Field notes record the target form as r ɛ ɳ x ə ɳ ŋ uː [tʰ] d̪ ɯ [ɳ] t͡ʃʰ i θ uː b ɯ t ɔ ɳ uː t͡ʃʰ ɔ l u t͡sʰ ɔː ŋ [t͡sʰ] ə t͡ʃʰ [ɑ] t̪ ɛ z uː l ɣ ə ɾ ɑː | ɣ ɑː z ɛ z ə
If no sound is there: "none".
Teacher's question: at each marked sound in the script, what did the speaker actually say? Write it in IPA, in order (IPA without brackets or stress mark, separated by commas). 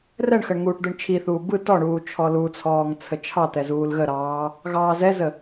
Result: ʈ, ɳ, t͡sʰ, ɑ